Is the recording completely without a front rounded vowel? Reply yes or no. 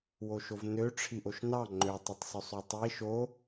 no